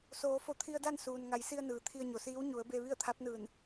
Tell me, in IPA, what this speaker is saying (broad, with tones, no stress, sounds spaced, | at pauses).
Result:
s oː˩˧ f o˧˩ t̪ʰ i˧ ə̯ d a˥˨ n s uː˩ n ŋ a˩˧ j s i˧ ə̯ n ɯː˩˧ t̪ʰ i˧ ə̯ ɲ o˩˧ s iː˧˥ w ɲ u˩˧ ə̯ b e˧ ʋ i˥˨ ə̯ t̪ʰ a˧˥ p̚ n ɯː˧˩ n